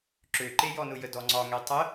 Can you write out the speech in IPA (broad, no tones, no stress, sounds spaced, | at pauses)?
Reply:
ǁ ø ǃ e j ɔ n ʊ j ə d ɔ ŋ͡ǀ ɒ ŋ ɛ tˤ ə